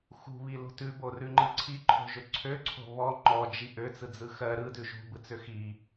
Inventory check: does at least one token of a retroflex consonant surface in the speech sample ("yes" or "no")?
no